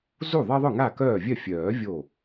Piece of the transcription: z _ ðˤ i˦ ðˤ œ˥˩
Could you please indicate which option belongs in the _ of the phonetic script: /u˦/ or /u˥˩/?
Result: u˥˩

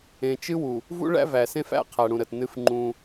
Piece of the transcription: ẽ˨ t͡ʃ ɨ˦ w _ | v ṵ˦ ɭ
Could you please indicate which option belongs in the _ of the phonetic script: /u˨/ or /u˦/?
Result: u˨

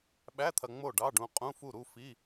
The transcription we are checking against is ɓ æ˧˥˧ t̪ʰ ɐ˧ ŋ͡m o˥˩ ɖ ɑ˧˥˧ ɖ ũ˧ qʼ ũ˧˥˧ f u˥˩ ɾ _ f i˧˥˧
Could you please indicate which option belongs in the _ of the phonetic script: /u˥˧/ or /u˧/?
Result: u˥˧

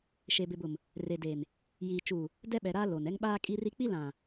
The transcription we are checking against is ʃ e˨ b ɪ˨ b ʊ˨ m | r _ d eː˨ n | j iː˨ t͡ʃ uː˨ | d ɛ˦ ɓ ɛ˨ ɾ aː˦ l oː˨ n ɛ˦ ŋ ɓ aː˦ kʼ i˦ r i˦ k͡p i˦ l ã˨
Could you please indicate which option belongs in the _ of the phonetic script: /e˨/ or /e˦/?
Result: e˨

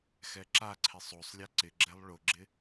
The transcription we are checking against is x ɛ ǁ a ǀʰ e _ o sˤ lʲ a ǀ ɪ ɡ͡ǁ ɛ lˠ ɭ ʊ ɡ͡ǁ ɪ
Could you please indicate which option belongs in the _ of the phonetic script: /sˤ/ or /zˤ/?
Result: sˤ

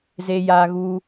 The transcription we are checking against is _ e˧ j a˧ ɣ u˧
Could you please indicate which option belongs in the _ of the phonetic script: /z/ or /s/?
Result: z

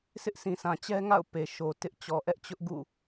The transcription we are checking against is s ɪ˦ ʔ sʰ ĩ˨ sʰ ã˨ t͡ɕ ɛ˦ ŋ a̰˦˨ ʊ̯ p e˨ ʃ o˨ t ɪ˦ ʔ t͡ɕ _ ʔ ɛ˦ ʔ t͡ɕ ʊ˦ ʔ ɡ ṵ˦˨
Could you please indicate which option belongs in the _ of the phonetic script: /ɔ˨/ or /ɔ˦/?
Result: ɔ˨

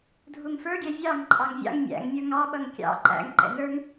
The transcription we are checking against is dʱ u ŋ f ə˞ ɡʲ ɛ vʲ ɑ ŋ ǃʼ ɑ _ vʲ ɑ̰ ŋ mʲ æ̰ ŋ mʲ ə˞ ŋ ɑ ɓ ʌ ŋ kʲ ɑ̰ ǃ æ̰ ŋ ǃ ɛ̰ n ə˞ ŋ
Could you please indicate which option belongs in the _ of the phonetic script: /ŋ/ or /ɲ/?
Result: ŋ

